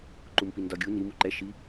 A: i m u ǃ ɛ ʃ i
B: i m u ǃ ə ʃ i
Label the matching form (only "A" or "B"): A